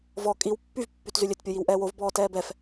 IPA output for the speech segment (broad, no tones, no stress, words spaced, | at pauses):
vɔ kʼiw pːyv pːytzylʲøt pʲojiwʔɛːwov bɔːtɛːbɛf